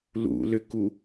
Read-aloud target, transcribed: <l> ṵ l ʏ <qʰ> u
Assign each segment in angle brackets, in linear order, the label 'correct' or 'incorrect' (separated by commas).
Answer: correct, incorrect